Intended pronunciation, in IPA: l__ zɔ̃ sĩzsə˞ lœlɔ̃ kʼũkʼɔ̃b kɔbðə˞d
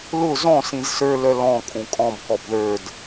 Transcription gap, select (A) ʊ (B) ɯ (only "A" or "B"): A